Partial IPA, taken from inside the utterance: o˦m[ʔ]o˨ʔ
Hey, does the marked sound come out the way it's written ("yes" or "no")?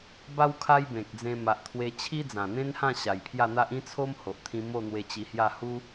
no